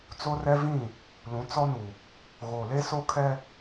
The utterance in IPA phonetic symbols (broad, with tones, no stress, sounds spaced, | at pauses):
t͡s o˦ r ɛ˦ v ĩ˦˨ | l ũ˨˦ t͡s ɔ˦ n u˨ | ɣ o˨ l e˦ s o˦ kʰ ɛ˦